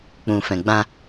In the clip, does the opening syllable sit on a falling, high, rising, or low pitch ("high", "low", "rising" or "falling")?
low